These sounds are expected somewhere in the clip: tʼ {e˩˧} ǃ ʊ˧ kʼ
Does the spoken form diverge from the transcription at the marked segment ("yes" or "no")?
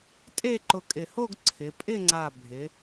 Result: yes